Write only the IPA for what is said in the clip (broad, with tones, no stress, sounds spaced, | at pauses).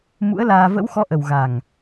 m ṵ˧˥ ə̯ l aː˧ v ə̰˧˥ w x ɔ˨˦ ʔ ə˨˩ w ɣ a˨˩ ŋ